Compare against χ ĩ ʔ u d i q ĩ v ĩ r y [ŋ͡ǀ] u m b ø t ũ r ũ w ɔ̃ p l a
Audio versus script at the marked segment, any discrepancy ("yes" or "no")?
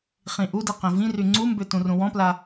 no